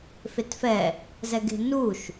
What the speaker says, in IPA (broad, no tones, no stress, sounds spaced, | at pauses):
f e t f ɛ | z ɛ ɡ e̤ n u ʃ